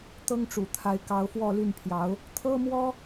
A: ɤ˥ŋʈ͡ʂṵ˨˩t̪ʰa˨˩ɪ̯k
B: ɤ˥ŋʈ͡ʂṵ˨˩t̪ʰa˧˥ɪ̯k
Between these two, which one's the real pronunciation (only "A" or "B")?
B